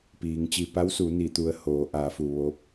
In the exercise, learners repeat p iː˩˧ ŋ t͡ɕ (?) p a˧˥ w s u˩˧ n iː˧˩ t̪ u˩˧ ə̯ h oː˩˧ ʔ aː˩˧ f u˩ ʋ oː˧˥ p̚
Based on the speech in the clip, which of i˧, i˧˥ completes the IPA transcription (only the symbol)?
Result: i˧